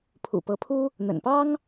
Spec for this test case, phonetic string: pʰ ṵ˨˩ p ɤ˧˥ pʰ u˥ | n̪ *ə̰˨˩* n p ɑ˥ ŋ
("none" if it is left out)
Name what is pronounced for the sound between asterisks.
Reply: ə̰˨˩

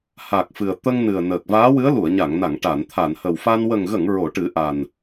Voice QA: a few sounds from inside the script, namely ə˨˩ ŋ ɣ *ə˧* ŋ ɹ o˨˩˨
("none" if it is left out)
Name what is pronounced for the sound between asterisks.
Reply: ə˨˩˨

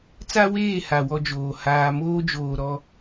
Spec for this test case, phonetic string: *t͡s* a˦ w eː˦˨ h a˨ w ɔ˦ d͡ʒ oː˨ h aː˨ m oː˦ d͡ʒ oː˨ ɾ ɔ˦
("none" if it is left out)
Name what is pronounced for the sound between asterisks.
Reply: t͡s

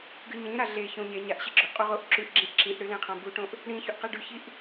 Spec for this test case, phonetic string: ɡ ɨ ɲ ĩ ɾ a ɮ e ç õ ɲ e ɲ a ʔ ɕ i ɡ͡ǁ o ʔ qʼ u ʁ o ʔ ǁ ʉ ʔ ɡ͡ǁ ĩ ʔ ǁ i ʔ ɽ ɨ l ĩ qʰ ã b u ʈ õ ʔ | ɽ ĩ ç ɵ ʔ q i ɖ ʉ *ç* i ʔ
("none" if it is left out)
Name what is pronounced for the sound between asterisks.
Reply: ç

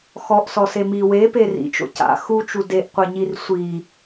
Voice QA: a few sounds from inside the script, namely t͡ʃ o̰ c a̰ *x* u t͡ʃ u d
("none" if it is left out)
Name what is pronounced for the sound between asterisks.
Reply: x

